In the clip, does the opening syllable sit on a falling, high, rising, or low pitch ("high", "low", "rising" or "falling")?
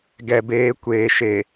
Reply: low